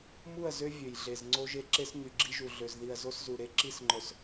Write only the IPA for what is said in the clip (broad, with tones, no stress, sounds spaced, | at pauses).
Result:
m u˦˨ ɐ̯ z ø˦ vʲ ø˨ j ɮ e˨ z ŋ͡ǀ o˦ ʒ e˦ ǁ e˦ s ɲ y˨ ɡ͡ǁ i˦ ʒ u˨ ɮ ø˨ z ð i˨ ɐ̯ z o˦ s z u˨ ɾ e˦ ǁ i˦ s ŋ͡ǃ œ˨ s